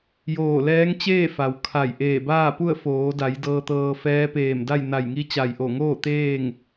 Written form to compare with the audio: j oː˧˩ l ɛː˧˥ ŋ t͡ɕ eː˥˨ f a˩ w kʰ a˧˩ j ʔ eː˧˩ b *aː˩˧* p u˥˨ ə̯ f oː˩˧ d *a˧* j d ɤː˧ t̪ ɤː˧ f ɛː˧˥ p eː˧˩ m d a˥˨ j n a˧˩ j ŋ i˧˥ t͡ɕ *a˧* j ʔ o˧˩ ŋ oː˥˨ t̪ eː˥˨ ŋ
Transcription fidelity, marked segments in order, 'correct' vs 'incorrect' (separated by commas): incorrect, incorrect, incorrect